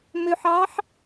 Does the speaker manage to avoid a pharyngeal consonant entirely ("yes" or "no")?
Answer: no